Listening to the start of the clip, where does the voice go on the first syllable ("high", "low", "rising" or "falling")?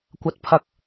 rising